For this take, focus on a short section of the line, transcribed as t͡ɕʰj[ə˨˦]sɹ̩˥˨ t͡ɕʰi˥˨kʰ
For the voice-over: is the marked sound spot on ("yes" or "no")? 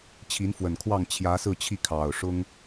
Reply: no